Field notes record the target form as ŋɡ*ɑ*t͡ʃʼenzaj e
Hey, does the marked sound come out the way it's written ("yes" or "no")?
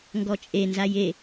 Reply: no